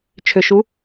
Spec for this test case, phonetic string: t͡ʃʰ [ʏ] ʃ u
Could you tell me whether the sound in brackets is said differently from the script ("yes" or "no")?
no